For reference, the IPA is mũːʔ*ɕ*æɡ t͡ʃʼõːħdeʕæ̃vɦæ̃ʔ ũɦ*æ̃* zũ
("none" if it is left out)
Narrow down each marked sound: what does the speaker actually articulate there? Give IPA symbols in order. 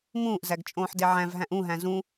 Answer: z, æ̃

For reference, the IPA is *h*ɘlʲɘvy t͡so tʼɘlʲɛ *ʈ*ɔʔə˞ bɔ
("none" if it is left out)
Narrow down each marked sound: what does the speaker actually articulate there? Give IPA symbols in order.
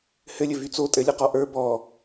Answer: h, q

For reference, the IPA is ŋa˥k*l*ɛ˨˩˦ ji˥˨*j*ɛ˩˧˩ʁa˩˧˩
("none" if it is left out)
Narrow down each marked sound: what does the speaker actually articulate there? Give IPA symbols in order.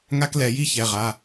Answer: l, ç

